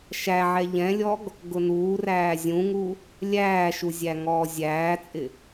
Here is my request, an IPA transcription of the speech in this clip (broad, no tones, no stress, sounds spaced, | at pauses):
ʃ æ ʕ ɛ ʎ ɛ̃ lʲ ɔ ɡ | ɡ ʊ n uː r æː zʲ ũ ŋ u | lʲ æː ʃ u zʲ æ ŋ ɔː zʲ æː t͡sʼ ɪ